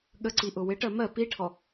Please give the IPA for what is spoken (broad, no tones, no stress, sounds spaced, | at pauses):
ɠ ə ǀ i ʔ ʊ w ɪ ʈ ɜ m ɜ p i ʈʰ ɔ